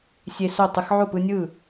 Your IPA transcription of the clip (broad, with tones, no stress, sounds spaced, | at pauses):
sʲ e˦ s o˥˨ tˤ ɯ˦ x ʕ o˥˨ p ɯ˦ nʲ ɯː˥˨